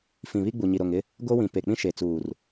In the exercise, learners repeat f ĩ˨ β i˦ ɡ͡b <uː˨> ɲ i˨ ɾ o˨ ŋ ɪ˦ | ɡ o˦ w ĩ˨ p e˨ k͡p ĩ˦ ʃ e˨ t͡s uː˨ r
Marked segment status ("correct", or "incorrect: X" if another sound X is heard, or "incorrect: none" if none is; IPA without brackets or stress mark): incorrect: u˨